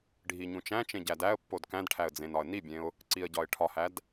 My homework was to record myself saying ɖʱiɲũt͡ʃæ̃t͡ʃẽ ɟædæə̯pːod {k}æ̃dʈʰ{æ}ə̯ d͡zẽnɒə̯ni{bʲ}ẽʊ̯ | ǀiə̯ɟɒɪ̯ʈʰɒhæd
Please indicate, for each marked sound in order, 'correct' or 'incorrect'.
correct, correct, correct

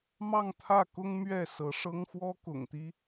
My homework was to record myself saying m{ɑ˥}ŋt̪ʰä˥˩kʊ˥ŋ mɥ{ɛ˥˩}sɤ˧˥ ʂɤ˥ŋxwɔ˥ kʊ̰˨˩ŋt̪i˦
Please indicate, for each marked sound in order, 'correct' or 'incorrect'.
incorrect, correct

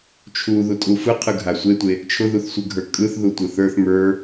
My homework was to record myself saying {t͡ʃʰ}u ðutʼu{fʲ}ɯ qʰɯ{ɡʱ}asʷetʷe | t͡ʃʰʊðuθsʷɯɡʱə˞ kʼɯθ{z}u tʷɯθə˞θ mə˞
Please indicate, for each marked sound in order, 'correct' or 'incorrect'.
correct, incorrect, correct, incorrect

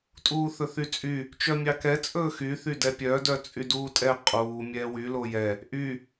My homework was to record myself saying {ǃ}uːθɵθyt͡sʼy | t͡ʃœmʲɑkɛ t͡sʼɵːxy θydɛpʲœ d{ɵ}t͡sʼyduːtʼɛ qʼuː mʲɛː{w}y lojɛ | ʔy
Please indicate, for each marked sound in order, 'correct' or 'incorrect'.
incorrect, incorrect, correct

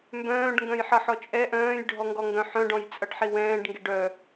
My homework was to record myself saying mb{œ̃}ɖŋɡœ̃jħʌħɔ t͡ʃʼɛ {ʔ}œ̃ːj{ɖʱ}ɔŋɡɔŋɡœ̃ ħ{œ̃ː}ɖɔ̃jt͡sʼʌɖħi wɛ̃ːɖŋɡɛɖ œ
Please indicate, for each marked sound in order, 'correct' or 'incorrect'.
incorrect, correct, correct, incorrect

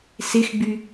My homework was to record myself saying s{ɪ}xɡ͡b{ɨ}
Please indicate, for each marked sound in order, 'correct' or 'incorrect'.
correct, incorrect

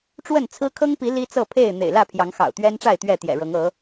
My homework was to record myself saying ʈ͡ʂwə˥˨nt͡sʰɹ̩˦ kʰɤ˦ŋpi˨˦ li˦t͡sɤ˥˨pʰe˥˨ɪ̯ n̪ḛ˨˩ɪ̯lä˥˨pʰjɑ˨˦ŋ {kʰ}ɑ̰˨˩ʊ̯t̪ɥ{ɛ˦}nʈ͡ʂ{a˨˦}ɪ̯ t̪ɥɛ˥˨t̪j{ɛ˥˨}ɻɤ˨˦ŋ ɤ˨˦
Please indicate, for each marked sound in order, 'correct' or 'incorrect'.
incorrect, correct, incorrect, incorrect

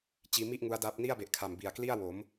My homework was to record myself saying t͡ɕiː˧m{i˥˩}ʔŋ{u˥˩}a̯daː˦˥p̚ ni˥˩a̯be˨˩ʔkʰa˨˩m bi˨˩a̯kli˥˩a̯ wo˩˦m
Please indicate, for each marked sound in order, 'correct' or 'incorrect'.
correct, incorrect

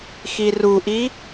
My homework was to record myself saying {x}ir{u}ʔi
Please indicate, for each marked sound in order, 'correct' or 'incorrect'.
correct, correct

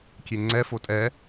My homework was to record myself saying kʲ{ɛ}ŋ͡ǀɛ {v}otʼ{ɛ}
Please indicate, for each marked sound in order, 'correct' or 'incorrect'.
incorrect, incorrect, correct

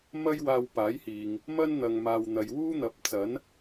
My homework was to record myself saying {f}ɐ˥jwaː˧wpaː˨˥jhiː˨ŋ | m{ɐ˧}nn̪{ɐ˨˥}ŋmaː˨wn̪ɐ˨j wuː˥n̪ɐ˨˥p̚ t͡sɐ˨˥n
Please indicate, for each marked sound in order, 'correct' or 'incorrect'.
incorrect, incorrect, incorrect

